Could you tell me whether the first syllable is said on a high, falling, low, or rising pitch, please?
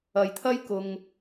low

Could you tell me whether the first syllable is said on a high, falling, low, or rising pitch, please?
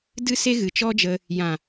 high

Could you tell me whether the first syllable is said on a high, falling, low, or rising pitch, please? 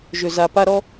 low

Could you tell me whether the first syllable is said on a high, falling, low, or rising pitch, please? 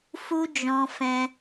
high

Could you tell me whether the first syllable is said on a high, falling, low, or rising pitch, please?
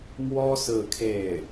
high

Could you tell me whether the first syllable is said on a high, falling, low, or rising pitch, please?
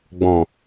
low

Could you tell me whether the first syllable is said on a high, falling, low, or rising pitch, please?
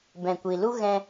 low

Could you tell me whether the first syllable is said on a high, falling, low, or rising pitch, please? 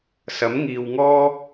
rising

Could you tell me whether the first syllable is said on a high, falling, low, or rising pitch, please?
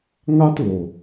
high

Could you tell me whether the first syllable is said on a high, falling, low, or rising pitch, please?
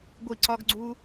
falling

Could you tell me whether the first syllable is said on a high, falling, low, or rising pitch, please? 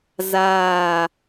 falling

